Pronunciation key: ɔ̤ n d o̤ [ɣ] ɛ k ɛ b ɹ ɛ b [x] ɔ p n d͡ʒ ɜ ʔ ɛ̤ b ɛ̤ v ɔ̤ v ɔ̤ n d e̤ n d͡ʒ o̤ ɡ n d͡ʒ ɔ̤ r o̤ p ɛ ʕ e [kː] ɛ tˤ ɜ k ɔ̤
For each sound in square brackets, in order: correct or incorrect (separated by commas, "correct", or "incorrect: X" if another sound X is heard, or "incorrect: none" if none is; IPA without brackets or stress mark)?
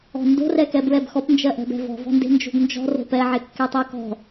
incorrect: r, correct, correct